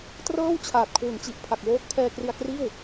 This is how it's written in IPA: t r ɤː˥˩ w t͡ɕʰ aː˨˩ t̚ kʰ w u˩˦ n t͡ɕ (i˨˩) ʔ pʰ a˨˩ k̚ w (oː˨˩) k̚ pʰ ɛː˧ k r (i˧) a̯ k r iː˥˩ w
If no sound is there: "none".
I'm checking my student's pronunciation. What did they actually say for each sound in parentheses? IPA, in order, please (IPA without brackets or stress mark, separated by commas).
i˨˩, oː˦˥, i˧